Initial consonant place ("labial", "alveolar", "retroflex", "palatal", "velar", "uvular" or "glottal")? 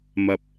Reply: labial